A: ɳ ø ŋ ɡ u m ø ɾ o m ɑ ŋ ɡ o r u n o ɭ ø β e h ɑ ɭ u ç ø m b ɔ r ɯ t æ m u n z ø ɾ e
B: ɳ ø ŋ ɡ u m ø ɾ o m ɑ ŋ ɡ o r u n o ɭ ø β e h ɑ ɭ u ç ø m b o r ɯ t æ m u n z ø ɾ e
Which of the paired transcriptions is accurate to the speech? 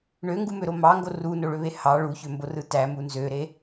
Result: B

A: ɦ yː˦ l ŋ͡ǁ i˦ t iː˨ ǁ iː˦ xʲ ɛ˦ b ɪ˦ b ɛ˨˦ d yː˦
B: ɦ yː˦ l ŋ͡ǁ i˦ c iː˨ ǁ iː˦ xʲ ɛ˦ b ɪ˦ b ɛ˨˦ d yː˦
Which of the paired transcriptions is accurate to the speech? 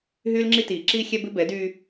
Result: A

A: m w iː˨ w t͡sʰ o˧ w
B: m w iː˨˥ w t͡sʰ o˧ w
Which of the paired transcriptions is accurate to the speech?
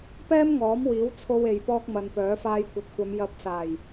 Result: B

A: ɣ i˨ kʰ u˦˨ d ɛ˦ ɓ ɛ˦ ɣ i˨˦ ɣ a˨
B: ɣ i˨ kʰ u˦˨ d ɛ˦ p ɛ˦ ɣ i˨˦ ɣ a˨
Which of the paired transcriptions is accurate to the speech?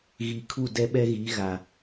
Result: A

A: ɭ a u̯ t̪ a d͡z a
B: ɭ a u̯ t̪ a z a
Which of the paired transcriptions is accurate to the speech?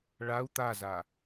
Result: B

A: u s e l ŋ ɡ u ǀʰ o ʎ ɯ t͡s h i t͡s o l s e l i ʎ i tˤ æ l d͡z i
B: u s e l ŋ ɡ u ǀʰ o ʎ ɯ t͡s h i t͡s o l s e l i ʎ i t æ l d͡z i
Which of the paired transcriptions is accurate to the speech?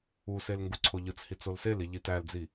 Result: B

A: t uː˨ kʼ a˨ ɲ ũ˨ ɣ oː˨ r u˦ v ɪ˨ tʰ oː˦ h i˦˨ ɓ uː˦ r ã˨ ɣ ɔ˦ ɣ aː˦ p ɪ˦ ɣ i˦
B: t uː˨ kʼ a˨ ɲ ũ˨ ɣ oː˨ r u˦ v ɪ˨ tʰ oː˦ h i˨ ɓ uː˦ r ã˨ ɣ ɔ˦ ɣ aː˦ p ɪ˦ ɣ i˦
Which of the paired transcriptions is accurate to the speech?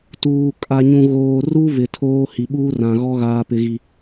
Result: B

